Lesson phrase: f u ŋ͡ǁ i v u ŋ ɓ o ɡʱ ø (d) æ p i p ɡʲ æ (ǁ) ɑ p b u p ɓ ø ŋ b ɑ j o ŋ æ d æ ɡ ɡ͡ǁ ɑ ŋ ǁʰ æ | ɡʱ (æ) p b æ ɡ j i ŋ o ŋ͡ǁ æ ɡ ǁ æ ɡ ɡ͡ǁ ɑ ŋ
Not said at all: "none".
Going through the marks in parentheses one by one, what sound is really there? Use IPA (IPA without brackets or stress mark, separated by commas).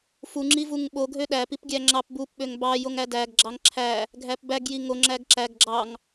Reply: ɗ, ŋ͡ǁ, æ